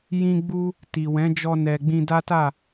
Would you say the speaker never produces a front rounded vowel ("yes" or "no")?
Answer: yes